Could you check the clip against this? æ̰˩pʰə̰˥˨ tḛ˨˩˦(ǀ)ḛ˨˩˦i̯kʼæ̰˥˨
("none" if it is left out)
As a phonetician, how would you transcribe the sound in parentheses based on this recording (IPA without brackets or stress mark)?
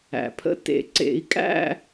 ǀ